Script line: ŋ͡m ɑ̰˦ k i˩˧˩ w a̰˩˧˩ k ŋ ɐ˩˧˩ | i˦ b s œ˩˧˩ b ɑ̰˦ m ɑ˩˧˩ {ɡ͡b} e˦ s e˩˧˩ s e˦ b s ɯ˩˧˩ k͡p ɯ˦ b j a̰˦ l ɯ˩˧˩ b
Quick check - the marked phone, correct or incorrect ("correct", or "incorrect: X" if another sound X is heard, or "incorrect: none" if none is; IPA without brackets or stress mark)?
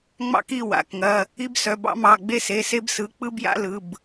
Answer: correct